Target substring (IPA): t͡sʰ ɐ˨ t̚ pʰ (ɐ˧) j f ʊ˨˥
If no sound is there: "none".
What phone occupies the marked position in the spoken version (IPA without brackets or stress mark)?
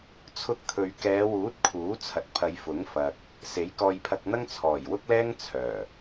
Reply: ɐ˨˧